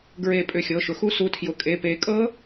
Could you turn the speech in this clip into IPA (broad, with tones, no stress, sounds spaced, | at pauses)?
ɡ ɹ e˨˩˦ pʼ ʏ˩˧˩ xʲ ɤ˩˧˩ ʃ ʊ˩˥ x u˦˥ s u˩˧˩ tʰ j ʊ˩˥ kʼ e˩˧˩ p e˨˩˦ kʼ ɤ˦˥